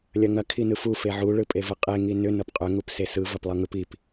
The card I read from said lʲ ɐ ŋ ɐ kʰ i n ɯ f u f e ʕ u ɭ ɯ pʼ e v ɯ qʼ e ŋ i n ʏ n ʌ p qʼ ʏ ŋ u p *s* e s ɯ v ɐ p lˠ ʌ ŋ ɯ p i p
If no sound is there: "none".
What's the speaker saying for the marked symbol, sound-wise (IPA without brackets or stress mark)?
s